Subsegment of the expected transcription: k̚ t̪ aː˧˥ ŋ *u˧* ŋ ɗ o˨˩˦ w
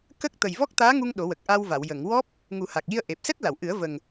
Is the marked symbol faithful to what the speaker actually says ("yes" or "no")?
yes